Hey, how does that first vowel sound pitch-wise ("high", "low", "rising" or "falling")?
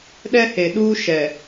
high